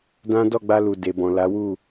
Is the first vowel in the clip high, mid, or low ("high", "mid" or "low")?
low